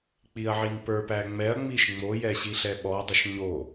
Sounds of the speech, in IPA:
k͡p i ɐ̯ ʕ i n p ə˞ p æ ŋ͡m ɛ ɐ̯ ŋ͡m i ʃ ŋ͡m o j ɛ ɕ i ɬ ɛ ɓ ɔ dˤ ə ʃ ɲ o

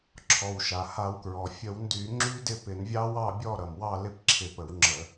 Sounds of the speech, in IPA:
ǁʰ ɔ˩ w ʃ a˩ h a˧˩˧ w k ɹ ɔ˩ fʲ ə˧˩˧ w n d y˧˩˧ ŋ͡ǁ y˦˥ d ɪ˥˨ p ɪ˧˩˧ n vʲ ɑ˦˥ w ɑ˥˨ bʲ ɔ˥˨ ɾ ʌ˩ m w ɑ˥˨ l ɪ˥˨ p ǁʰ ɪ˧˩ p ə˧˩˧ w ŋ͡ǁ ə˧˩˧

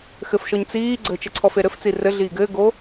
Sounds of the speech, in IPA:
x ɘ f ʃ ɔ ɲ t͡s iː ɡ͡ǀ ə t͡ʃ ɘ ǀʰ ɔ f e ɾ ɘ f t͡s i r ɘ ɮ iː ɡ ɘː ɡ o

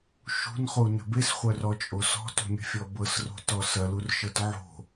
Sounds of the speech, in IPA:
ʃ ṳ n χ u n ə̤ b e s χʷ œ r ɔ t͡ʃʼ o s ɔ̤ t ṳ mʲ ə̤ fʲ ɔ b ɤ s r o̤ t ɔ s ɐ l u r ʃ ɤ t ʕ o̤

